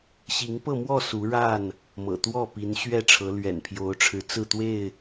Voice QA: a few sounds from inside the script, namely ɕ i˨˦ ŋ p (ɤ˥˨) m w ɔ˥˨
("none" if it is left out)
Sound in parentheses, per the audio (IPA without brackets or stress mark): ɤ˥˨